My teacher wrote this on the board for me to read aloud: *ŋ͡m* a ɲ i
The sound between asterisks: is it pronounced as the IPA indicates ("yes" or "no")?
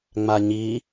yes